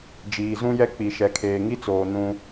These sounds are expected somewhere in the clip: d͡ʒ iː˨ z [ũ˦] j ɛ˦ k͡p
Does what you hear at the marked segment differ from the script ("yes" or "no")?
no